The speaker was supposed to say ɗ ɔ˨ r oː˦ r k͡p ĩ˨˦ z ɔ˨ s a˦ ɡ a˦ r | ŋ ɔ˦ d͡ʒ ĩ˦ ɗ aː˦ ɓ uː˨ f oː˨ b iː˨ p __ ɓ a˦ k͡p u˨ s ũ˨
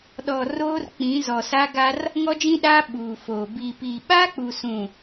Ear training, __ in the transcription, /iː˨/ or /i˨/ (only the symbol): iː˨